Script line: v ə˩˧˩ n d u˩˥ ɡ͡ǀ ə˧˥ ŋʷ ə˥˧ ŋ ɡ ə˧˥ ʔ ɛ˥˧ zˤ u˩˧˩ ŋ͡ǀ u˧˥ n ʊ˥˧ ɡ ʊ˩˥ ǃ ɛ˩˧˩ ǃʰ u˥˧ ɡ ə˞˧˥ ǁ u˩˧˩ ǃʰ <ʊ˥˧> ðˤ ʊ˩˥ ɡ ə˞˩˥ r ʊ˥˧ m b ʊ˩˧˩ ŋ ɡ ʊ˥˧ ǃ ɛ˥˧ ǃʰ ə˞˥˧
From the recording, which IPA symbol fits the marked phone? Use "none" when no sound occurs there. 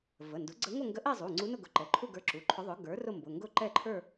ʊ˧˥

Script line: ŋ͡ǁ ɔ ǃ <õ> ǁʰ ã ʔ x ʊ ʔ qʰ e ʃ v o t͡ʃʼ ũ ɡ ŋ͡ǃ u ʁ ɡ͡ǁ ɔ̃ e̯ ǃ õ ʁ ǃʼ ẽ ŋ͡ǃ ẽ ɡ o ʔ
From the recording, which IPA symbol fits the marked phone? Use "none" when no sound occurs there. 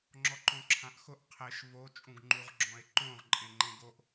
õ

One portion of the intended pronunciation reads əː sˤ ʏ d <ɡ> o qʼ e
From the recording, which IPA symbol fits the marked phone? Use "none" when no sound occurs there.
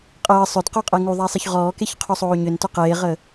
q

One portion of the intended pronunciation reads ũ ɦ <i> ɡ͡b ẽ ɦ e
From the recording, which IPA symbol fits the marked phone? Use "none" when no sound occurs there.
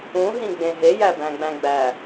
ĩ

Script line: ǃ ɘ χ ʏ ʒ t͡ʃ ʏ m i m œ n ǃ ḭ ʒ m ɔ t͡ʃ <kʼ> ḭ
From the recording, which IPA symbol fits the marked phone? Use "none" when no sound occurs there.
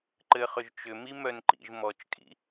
kʼ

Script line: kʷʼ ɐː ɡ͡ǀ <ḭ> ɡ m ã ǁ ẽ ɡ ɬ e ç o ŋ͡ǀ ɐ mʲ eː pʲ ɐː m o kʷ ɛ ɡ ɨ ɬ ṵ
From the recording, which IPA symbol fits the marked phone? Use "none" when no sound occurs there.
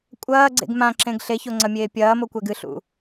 ḛ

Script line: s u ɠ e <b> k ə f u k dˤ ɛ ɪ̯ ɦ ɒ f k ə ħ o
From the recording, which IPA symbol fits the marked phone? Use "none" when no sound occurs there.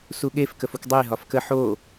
f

